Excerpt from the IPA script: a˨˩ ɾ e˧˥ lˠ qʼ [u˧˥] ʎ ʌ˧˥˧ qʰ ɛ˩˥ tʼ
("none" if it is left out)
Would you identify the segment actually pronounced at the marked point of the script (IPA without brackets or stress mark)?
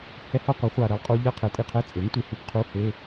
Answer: u˧˥